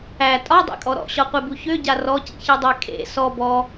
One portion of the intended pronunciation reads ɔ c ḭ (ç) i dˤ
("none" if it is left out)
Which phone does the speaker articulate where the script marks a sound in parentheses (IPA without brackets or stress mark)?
ç